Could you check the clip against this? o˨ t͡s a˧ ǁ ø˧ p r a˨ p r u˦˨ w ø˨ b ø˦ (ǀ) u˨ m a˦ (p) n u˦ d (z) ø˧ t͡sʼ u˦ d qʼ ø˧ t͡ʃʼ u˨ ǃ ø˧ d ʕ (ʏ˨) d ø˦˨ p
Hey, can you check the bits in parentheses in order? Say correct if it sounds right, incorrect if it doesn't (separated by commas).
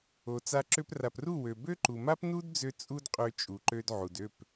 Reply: incorrect, correct, incorrect, incorrect